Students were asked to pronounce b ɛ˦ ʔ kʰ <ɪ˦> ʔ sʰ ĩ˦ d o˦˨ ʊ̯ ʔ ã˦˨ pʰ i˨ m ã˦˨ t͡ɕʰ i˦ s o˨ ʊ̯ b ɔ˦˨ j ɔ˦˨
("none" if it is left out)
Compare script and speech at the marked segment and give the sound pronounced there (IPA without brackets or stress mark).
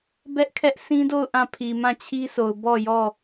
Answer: ɛ˦